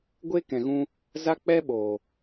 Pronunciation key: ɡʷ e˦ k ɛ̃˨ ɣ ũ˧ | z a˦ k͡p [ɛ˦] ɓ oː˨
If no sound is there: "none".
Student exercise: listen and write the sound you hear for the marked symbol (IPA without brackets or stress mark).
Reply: ɛ˦